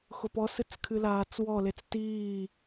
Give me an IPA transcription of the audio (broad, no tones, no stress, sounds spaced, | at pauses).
x ʊ p ɔ s ɨ t͡s kʰ ɨ l aː t͡s w ɔ l e t͡s t iː